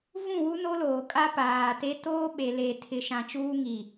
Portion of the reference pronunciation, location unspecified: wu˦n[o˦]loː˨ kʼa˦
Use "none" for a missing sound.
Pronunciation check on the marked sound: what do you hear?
o˦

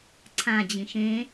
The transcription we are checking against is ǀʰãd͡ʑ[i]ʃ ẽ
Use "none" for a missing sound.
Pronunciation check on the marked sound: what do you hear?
ĩ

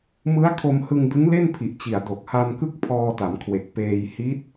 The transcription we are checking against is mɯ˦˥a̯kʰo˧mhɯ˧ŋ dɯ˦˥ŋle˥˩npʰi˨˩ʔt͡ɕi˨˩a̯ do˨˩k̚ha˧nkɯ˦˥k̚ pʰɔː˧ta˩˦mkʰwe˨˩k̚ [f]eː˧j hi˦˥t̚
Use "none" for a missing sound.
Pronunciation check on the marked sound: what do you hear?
p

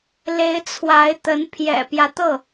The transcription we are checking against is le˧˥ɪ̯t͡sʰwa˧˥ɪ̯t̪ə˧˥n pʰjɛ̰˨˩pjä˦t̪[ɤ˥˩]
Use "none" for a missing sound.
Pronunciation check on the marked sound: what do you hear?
ɤ˥˩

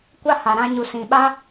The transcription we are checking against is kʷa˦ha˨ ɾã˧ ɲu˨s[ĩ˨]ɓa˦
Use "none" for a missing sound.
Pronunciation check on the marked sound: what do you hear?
ĩ˨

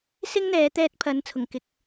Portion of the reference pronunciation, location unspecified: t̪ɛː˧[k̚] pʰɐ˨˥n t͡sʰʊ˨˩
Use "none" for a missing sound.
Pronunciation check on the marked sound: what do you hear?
t̚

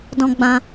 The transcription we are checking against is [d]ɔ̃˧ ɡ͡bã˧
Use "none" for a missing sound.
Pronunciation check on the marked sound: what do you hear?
d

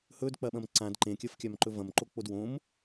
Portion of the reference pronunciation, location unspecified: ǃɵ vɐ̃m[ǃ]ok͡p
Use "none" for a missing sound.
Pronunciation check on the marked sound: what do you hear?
ǃ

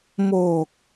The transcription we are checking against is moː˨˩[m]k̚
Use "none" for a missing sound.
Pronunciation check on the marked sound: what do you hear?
none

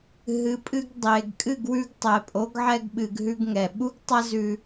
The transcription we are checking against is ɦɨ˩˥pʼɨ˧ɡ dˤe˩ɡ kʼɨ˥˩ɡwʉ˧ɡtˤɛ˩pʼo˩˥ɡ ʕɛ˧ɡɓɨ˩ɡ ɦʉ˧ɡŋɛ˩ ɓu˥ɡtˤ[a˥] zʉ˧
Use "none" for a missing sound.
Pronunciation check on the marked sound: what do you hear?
a˥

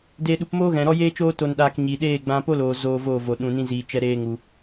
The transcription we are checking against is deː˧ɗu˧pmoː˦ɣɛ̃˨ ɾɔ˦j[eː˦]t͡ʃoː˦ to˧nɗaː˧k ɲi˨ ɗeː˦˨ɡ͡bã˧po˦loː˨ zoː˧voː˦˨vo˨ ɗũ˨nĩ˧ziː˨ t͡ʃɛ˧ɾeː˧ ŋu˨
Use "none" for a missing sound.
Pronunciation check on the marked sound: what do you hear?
eː˦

